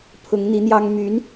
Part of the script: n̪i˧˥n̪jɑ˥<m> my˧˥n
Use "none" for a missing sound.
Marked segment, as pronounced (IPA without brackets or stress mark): ŋ